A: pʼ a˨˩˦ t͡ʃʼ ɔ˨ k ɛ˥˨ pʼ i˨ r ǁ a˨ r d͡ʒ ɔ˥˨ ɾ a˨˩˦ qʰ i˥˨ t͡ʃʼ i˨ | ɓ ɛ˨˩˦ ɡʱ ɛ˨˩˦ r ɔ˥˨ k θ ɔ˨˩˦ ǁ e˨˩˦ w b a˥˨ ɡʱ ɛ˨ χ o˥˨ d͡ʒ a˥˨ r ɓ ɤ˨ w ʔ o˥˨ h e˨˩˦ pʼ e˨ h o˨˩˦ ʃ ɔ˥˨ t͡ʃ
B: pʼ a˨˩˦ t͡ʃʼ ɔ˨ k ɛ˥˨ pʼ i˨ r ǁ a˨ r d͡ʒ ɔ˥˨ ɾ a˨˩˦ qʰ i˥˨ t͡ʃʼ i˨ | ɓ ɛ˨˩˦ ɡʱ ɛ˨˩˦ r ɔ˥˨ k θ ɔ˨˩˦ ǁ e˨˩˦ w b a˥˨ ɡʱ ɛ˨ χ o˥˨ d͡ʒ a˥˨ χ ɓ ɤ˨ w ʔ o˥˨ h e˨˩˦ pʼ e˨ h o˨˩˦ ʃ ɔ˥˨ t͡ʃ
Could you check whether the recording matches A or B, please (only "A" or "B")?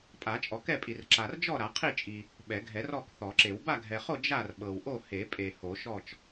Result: A